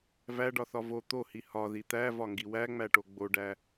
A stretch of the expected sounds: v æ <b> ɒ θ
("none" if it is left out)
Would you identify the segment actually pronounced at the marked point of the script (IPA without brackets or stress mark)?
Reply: ɖ